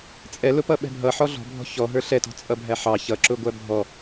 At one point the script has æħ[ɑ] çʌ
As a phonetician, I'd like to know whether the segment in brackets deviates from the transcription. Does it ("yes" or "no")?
no